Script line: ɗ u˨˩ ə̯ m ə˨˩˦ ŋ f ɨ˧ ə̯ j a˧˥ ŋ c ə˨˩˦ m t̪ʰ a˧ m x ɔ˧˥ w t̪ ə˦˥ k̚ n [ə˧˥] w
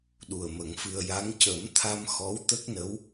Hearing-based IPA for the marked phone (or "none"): ə˧˥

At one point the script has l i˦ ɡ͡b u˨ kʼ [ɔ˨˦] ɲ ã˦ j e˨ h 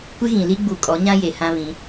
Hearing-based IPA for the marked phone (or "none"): ɔ˨˦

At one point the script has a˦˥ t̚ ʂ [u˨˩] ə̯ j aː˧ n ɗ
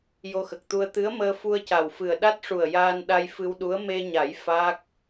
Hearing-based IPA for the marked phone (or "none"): u˨˩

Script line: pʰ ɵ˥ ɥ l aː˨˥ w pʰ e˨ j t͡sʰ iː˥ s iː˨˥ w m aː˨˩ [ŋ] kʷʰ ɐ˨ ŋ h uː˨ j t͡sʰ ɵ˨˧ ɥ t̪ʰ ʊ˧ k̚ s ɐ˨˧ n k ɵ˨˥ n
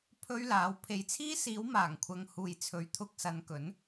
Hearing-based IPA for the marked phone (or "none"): ŋ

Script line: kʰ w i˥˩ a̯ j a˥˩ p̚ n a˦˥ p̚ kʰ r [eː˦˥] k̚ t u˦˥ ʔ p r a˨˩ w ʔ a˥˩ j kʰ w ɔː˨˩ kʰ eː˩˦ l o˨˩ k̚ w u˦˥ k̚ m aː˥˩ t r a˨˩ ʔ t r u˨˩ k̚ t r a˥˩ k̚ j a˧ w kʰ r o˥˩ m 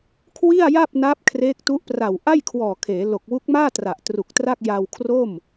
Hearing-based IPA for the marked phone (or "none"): eː˦˥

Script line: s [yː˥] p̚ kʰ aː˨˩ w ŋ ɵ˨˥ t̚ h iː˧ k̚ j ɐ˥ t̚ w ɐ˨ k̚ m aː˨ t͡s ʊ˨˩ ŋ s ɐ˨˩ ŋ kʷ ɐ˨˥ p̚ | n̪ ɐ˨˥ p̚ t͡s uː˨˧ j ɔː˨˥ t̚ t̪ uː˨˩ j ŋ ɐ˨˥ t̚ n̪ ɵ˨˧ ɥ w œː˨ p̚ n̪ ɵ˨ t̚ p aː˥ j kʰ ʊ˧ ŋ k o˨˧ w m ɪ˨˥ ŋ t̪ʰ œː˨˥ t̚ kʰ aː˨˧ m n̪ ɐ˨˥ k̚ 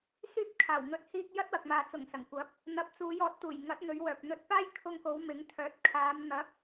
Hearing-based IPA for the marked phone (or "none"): yː˥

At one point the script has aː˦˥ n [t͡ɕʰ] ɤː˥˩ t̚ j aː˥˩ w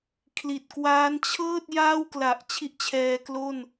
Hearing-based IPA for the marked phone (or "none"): t͡ɕʰ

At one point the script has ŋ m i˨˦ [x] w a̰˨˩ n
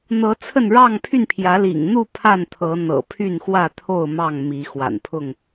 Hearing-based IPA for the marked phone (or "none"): x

